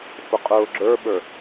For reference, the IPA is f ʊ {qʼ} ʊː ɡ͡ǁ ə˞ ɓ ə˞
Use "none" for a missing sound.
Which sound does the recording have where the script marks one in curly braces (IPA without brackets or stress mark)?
qʼ